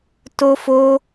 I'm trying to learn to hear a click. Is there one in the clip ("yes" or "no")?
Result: no